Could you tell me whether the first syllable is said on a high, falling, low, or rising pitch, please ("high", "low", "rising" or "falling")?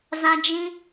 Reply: high